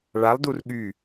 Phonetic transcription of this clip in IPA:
ɭ a lˠ d u r ɠ y

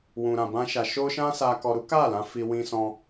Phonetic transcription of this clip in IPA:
w ũ˧ ɾ ã˧ b ã˦ ʃ a˧ ʃ o˦ ʃ ã˦ s a˧ k ɔ˧ ɾ u˦ k a˦˨ l ã˧ f i˦ w ĩ˦ s ɔ̃˦

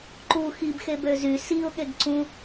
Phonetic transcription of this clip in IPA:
ǃ u x i b x e b ø z y s i ʊ̯ ɠ e ɡ ǀ ũ

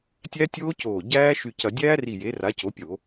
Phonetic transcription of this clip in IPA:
tʲ æ˦˥ tʲ oː˦˥ c oː˧˩ ɟ æː˦˥ ʃ y˧˩ c ɐ˧˩˧ dʲ æː˦˥ r i˧˩ j e˩˥ r a˩˥ c o˩˥ pʲ o˧˩˧

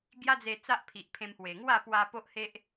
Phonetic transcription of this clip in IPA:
ɡ j a˦ d͡z e˧ t͡s a˦ ʔ pʰ i˨ ʔ pʰ ẽ˧ m h w e˨˩ ŋ w a˥˧ p w a˧ p o˦ ʔ h e˦ ʔ

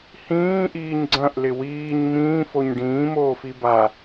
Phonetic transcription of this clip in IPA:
h ĩː ʔ iː ɲ ɡ͡ǀ ɐ̃ ʔ l ɪ w iː ɲ m ĩː f o ɲ ɖ ĩː m oː f i b a

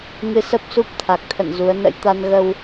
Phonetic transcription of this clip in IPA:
ŋ ɨ˧ s ə˦˥ p̚ s u˦˥ p̚ t̪ʰ a˨˩ k̚ t̪ʰ ə̰˧˨ n z u˨˦ ə̯ n ə̰˧˥ j t̪ a˧ n ɣ ə˧ w

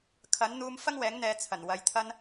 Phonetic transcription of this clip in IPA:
kʰ ɐ˨˥ n n̪ uː˧ m f ɐ˥ ŋ w ɛː˨˥ ŋ n̪ ɛː˨ t͡sʰ ɐ˨˩ n w ɐ˨ j t̪ʰ ɐ˧ n

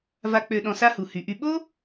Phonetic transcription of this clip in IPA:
v a˧ k͡p ø˧ ɗ ɔ̃˧ s a˥ h u˩˧ h y˩˧ ʔ y˧ ɓ o˥

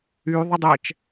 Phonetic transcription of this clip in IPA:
y ðˤ ə dˤ ɛ t͡ʃ

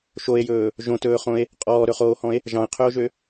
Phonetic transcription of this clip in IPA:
ʃ o e̯ j ɵː | ʒ õ t ɵː χ õ e̯ | qʼ ɔː ɾ ɵ χ oː h ɔ̃ e̯ | ʒ ɑ̃ e̯ qʰ ø o̯ ʒ ø

